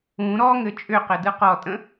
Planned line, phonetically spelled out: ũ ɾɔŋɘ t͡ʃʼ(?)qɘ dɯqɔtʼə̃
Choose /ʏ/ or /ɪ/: ʏ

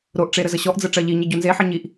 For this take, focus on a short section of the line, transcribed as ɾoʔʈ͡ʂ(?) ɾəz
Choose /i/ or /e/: e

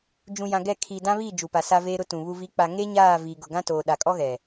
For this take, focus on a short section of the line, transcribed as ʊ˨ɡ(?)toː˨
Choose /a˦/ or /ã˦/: ã˦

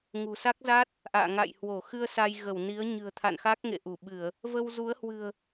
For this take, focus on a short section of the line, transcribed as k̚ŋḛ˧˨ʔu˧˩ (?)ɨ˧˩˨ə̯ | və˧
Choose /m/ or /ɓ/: ɓ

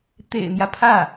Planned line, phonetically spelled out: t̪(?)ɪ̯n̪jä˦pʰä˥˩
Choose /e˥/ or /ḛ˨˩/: ḛ˨˩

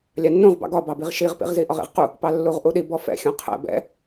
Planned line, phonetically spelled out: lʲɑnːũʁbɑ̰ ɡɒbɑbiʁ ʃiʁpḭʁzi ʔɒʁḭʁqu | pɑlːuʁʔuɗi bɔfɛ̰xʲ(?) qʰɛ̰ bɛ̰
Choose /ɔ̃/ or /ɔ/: ɔ̃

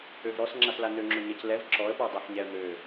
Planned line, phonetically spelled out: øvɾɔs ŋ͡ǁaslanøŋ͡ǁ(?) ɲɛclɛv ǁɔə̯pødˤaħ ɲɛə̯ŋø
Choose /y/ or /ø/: ø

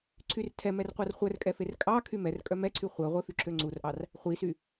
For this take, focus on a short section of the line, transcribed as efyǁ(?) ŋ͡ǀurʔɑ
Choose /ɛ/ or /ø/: ø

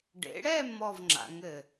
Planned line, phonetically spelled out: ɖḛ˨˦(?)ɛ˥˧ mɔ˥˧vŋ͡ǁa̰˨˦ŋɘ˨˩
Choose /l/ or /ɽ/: ɽ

